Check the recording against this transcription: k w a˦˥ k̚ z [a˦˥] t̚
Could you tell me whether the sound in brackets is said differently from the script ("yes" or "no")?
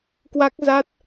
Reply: no